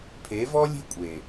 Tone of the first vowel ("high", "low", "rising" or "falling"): rising